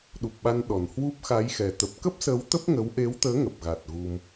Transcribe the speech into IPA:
ɗ u˨˩ p̚ ɓ a˧ n ɗ ɔ˨˩ n h w u˦˥ p̚ x a˨˦ j x ɛ˨˩ t̪ ə˨˩ p̚ k ə˦˥ p̚ s ə˨˦ w t̪ ə˦˥ p̚ ŋ ə˨˦ w ʔ e˨˦ w t̪ əː˨˦ ŋ ə˨˩ p̚ ɣ a˨˩ t̚ ɣ u˧ m

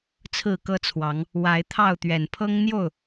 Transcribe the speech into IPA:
t͡sʰ ɹ̩˥˨ k ɤ˦ t͡sʰ w ɑ˨˦ ŋ | w a˨˦ ɪ̯ t̪ʰ ɑ˥˨ ʊ̯ t̪ ɥ ɛ˨˩ n pʰ ɤ˦ ŋ n̪ j o˥˨ ʊ̯

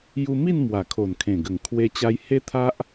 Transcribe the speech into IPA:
j u˧ m i˥˧ n m w a˨˩ kʰ o˨˩ n kʰ ẽ˨˩ ɡ ə˨˩ ŋ kʰ w e˧ t͡ɕ a˧ j h e˦ t̪ʰ a˦ ʔ

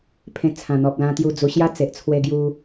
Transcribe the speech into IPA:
pʰ ẽ˧ t͡sʰ ã˨˩ n̪ ɔ˨ p̚ l ã˧ t̪ j u˧ d͡z u˧ ɕ j a˦ t͡s e˨ ʔ t͡sʰ w e˧ ɡ j u˧

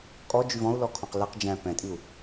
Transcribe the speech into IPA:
kʼ ɔ d͡ʒ y v ɔ̃ u̯ l ɔ kʰ ɔ̃ q l ɛ q d͡ʒ æ̃ p ɛ̃ tʼ i u̯

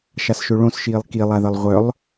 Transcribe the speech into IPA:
ʃ a s ʃ ø ɭ õ s ʃ iː lˠ k i lˠ a ð ə lˠ ʁʷ œ lˠ

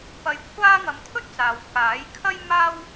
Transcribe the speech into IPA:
p ɐ˧ j kʷʰ aː˥ ŋ ɐ˧ m t̪ʰ ɵ˥ t̚ t͡s aː˨ w k aː˨˥ j kʰ ɐ˥ j m aː˥ w

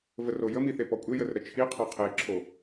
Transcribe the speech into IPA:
v ə r o j ə m i θ e p ɔ kʷʼ e j ə r ɾ ə t͡ʃʰ i qʰ ɔ qʰ e ǁʰ o

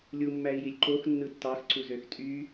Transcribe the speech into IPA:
lʲ u mː æ i̯ j i lʲ ǃ o x nː ɯ tː ɑ x ǀ u z ø x tʼ y

